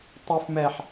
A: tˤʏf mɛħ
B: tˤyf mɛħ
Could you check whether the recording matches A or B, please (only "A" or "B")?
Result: B